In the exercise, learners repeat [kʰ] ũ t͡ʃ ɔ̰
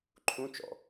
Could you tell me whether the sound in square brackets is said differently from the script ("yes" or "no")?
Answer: yes